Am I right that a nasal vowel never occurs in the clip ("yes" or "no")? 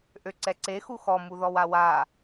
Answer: yes